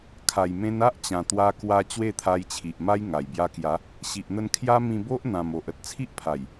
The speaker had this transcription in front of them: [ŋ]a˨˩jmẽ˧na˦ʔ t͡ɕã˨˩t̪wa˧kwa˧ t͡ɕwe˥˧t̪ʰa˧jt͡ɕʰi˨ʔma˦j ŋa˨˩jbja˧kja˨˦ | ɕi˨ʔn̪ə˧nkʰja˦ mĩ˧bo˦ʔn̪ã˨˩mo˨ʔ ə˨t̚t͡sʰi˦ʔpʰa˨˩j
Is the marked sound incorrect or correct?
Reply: incorrect